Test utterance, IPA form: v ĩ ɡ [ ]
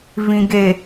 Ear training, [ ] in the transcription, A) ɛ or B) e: B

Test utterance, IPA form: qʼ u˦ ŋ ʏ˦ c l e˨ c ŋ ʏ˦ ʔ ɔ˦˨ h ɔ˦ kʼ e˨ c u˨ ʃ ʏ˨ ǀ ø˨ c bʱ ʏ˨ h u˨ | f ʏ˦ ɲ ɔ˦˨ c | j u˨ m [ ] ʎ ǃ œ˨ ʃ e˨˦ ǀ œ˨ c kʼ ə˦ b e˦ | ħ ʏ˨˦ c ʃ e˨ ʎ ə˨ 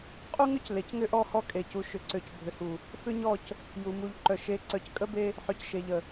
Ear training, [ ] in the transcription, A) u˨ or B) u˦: A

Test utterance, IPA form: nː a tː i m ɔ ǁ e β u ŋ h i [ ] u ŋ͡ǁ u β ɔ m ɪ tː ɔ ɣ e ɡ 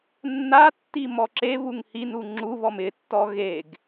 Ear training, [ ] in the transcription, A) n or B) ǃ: A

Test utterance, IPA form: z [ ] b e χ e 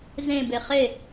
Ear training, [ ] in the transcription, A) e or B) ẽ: B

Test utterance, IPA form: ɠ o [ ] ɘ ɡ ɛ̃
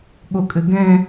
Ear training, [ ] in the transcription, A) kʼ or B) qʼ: A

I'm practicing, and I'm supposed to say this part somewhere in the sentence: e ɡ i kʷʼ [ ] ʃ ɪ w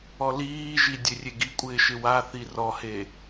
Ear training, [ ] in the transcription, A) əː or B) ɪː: B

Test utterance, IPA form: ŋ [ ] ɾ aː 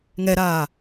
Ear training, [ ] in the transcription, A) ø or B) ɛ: B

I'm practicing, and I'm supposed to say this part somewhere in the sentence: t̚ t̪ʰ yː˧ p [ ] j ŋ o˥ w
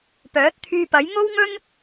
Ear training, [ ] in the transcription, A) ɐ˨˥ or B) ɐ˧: A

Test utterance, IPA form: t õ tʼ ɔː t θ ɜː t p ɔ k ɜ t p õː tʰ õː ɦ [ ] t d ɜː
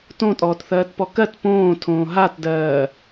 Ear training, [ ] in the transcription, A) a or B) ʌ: A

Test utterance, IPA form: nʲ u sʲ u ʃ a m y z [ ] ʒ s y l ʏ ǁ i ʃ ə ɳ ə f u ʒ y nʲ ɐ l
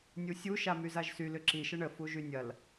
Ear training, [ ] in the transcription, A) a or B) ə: A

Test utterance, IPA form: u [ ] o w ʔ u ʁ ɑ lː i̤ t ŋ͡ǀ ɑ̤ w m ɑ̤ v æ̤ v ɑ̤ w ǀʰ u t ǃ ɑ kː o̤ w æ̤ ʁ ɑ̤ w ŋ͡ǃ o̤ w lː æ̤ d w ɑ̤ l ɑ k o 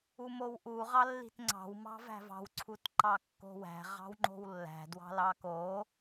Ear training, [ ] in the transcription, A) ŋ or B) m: B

